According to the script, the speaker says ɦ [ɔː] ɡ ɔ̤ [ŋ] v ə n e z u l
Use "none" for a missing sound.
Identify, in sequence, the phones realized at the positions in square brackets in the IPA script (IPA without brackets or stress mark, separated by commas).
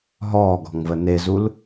ɔː, ŋ